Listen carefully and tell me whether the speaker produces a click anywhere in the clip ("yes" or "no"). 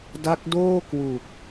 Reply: no